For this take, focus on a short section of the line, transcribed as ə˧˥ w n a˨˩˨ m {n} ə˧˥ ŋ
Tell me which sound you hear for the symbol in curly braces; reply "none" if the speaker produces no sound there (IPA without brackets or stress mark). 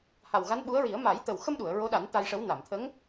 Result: t̪ʰ